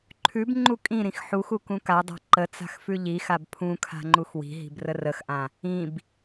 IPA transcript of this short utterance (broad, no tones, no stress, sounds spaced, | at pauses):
ǃʰ ʉ b ŋ͡ǃ u kʼ ĩ ɾ ĩ x ħ u x u k ũ k a dˤ a̤ ǃ ə t͡s a̤ x f ʉ ʎ i x a b pʰ ũ kʰ a̤ ŋ͡ǃ u x w i̤ ɦ i̤ b r ə r ə x ʔ ã | ĩ b